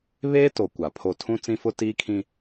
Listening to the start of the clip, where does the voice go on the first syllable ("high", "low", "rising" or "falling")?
high